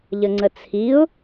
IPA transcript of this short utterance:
ʎ ə ŋ͡ǀ ə t͡sʰ i ʊ̯

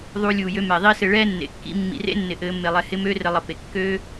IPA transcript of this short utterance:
ðˤ u˧ lʲ uː˨ j ø˧ m e˨ ðˤ i˦ s ɘ˧ ɭ ɛː˦ nː ḛ˨ kː ḭ˧ mː ḭ˨ r ḛ˦ nː ɪ˨ ʔ ɘː˧ mː e˨ lˠ ɛ˨ h ɪ˧ m ø˦ r ɘ˧ lˠ ə˨ p e˨ kː ø˦

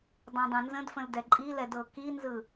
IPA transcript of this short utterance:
dˤ ɛ̃ dˤ ɛ̃ n z ə̃ d f ə̃ l d ɛ ǃʼ i l ɛ d ɤ k i n z ɯ

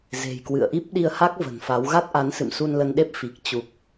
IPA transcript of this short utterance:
z e̤˨˩ j k w ɨ̰˧˨ ə̯ ʔ i˦˥ p̚ ɗ i˧ ə̯ h a˦˥ k̚ v ə̤˨˩ n f a˨˦ w ɣ a˦˥ t̚ ʔ a˨˦ n s ɨ̰˧˨ m s u˧ n l ə˧ n ɗ e˦˥ p̚ f i˨˩ k̚ t͡ɕ u˨˩ k̚

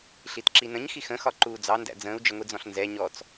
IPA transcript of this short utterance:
ɬ i t ǁ i n ə̃ ɲ x i x ə̃ x ɒ ǃ uː d͡z ɑ n d æ̰ d͡z ə̃ː u̯ d͡ʒ ʌ ŋʷ i d͡z ɔ̃ ɬ n z ɛ ɲ ɔ t͡s

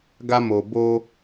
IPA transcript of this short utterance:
ɡ a˧ m o˨ b o˧

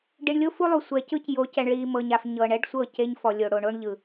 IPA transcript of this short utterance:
ɖ i˨ ɳ lʲ o˦ f u˦ lˠ u˨ sʷ ɛ˨ c ɯ˦ c j o˨˦ c ɛ˨ ɳ ɭ iː˨ m ɤ˨ ɲ a˨ f ɲ ɤ˨ ɳ ɛ˦ ɖ sʷ ɤ˦˨ c e˦ ɲ f ɔ˨ lʲ o˨ ɽ o˨ ɳ o˦ ɳ ʎ ɯ˨

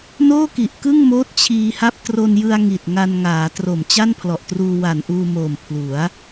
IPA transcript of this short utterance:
n oː˥˩ k i˨˩ ʔ k ɯ˥˩ ŋ m oː˦˥ t̚ t͡ɕʰ iː˧ h a˥˩ p̚ t r o˧ n j ɯ˧ a̯ ŋ i˨˩ t̚ ŋ a˧ n ŋ aː˩˦ t r o˨˩ m t͡ɕ a˥˩ n pʰ l ɔ˨˩ ʔ t r uː˧ w a˨˩ n ʔ uː˧ m oː˨˩ m pʰ l u˩˦ a̯

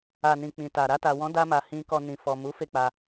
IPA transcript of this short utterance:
a˨ n ĩ˨ k͡p ĩ˨ t a˨ ɾ a˧ t a˨ w ɔ̃˨˦ d a˧ m a˨ h ĩ˧ k ɔ˧ n ĩ˨ f ɔ˨ m u˨˦ f e˦ k͡p a˧

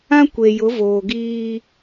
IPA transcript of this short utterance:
ã˦ kʷ e˨ j ʊ˨˦ v oː˨ ɡ iː˦

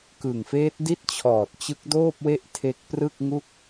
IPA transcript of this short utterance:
k ɯ˨˩ ŋ f eː˦˥ t̚ d i˥˩ t̚ t͡ɕʰ ɔː˨˩ t̚ t͡ɕ ɯ˦˥ k̚ d oː˥˩ p̚ w e˥˩ ʔ tʰ e˦˥ k̚ p r ɯ˥˩ k̚ ŋ u˥˩ k̚

